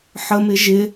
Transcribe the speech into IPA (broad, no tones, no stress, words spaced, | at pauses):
ħəmɪ ʒɪ